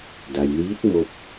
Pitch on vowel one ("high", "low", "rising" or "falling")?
low